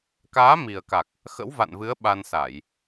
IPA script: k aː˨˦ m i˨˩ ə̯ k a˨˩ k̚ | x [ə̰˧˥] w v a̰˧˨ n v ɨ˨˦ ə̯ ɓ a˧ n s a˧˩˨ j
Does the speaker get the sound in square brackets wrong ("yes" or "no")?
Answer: no